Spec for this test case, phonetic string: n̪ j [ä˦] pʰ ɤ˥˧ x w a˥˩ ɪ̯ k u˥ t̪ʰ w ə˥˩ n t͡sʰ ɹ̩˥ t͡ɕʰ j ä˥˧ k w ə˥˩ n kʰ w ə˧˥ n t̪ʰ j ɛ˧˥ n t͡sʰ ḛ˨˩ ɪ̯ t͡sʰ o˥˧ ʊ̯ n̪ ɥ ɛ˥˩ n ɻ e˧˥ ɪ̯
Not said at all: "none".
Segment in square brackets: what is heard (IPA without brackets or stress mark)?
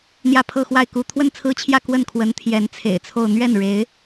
ä˥˧